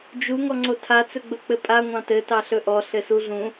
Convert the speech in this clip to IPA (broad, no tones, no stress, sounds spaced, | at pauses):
d͡ʒ u ŋ ɔ ŋ͡ǀ o tʰ a t͡s ɵ ɡ͡b ɵ k͡p ɘ pʼ a ŋʷ ɑ̃ t ɘ t ɑ ɬ ɵ ʔ ɔ ɬ ɘ s u ɮ ũ